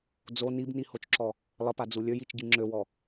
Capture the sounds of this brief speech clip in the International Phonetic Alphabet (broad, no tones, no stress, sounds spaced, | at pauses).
d͡z o n i b n i h o t͡ʃ ǁ ɔ | lˠ ə p a d͡z u lʲ ø j i t͡ʃ ɟ i ŋ͡ǁ ø w ɔ